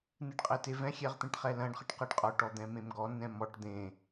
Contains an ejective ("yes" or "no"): yes